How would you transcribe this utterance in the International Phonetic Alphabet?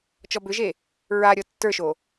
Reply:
t͡ʃ ɔ b ʏ ʒ e | ɹ a ɾʲ ɔ tː ə˞ ʃ o

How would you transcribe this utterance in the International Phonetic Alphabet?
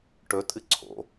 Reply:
ʈ ɵ tʼ ɨ ǀʰ o̰

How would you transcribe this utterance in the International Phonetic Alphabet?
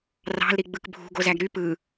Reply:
r ɑ̤ l ɾ i ɡ͡b ɯ k bʱ ṳ ɡ o z æ ɡ ɾ y p ɯ

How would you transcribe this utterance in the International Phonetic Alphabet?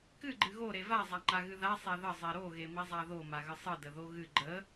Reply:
k ɨ ɡ͡ǃ ɨ ɣ o ɾ e v a zˤ a ŋ͡ǃ a ɣ ɨ ð a sˤ e ð ə zˤ e ɾ o ɣ e m i zˤ a ð o m a ɣ ə sˤ ɨ d ə ð o ɣ ɨ ɡ͡ǃ ə

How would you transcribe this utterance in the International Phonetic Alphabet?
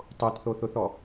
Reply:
tˤ o t θ o θ ʊ θ ɔ

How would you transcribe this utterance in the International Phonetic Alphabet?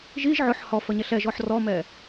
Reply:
ʒ i ʒ ʕ ʊ ħ h ɔ f ə ɲ ɛ ɬ ɛ ʒ ɔ ħ r ɔ m ɛ

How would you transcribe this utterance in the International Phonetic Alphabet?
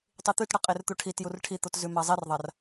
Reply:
tˤ i t̪ ʉ t ɽ ɐ qʼ e r t̪ u ʈʰ i t j u r ʈʰ i t̪ o t z ʉ m a zˤ i r ðˤ a r

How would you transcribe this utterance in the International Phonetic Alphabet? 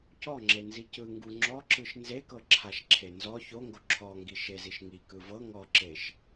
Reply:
c ɔ ŋ͡ǁ e n z i c ɯ ŋ ɡ u ŋ͡ǁ ɔ ǁ ɯ ʃ n z e k ɤ ǁʰ a ʃ ǁʰ e n z ɔ ç o ŋ ɡ o ǁʰ ɔ ŋ ɡ i ʃ e z i ʃ ŋ i k ɯ v ɤ ŋ ɔ ǁ e ʃ

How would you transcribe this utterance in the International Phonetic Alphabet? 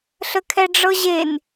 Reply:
ɬ ə kʰ ɛ ɖ͡ʐ ɤ ʑ e n

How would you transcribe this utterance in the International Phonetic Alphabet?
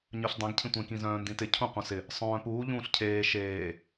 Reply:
ɲ œ ɬ dˤ ẽ ɡ cʰ ĩ tʷ ẽ k ĩ z œ̃ː n d ĩ t ɪ cʰ ũ qʷ œ̃ s ɪ | sˤ œ̃ː p uː ʎ ũː ɬ cʰ eː ʃ eː

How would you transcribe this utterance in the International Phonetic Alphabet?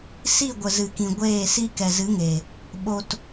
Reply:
s i˦˨ ɡʷ ə˨ z ɨ˨ k ĩ˨ ɡʷ eː˦˨ s i˦ k ɛ˨ z ɨ˨˦ ŋ e˨ | ɓ o˧ t

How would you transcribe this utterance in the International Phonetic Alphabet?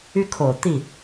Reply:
y˥˩ kʰ o˨˩ ʊ̯ t̪ i˥˩

